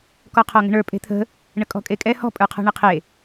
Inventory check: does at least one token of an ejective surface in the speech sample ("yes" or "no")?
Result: yes